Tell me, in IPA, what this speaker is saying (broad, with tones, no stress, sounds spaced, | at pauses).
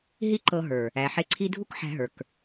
ɦ i˦ ǃ ɤ˧ ɦ ə˞˨ | æ˨ ħ e˧ ǀʰ i˦ dʱ u˦ k ħ æ̤˧ ɦ ə˞˨ k